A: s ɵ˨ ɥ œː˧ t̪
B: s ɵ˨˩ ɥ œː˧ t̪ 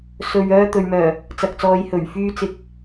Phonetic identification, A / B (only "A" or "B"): A